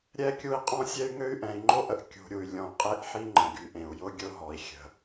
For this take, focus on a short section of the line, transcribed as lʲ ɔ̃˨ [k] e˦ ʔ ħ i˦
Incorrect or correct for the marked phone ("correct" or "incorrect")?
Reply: incorrect